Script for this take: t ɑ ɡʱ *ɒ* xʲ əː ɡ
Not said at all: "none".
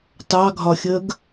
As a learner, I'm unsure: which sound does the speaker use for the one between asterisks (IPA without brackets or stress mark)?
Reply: ɒ